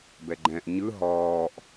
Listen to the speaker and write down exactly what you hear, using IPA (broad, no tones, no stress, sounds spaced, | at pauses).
b ɛ ɡ͡ǃ ɛ̃ ʔ ɲ ɯ ɦ ɔː ʔ